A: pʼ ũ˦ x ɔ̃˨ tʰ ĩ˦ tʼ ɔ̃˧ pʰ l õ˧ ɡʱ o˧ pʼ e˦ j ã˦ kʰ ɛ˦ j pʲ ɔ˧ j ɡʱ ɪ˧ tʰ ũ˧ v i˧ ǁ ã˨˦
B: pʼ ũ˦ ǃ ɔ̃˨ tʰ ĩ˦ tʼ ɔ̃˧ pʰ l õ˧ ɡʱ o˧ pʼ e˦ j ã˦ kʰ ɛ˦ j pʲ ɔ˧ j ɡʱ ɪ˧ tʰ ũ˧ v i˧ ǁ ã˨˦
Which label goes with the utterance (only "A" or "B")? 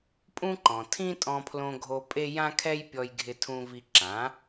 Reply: B